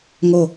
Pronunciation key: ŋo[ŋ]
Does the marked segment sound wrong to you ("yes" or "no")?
yes